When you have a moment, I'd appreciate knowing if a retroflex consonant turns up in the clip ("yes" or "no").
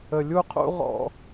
no